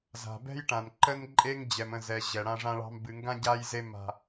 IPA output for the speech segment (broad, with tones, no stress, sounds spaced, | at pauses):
z a̤˨ b ɛ̤˦ j ʈ ã˨ n ǃ ə˦ n ǃʼ e˦ ŋ d͡ʑ ɛ˨ m ə̃˦˨ z ɛ˨ ʑ ɛ˨ ɽ ã˦ ʐ ã˦ ɭ ɑ̤˦ m b ɨ˨ ŋ ɡ ã˦ ɟ a˦ j z e˦ m a̤˦